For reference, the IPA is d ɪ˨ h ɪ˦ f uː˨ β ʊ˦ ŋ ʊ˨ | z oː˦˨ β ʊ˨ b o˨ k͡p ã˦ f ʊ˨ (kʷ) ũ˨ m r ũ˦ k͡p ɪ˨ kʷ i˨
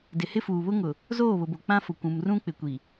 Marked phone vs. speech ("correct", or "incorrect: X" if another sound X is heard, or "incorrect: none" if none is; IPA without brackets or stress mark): correct